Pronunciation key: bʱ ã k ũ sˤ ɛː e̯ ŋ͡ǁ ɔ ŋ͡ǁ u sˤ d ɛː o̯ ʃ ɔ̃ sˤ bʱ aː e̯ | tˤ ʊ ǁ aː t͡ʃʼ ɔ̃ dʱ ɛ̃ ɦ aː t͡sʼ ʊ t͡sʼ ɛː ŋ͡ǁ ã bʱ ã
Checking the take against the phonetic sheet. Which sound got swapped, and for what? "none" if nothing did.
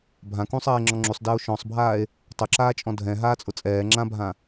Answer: none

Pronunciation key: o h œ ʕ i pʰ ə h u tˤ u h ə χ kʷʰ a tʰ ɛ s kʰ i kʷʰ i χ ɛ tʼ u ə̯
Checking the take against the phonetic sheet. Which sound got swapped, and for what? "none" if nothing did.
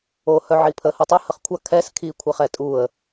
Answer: tʰ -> kʰ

